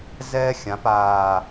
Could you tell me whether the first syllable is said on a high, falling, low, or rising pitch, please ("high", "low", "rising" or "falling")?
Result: high